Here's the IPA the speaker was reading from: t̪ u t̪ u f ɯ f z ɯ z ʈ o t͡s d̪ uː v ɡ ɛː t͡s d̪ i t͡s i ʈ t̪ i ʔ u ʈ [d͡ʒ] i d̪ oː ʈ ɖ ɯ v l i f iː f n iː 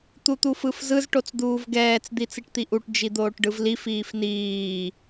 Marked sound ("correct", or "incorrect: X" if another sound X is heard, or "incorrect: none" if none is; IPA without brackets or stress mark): correct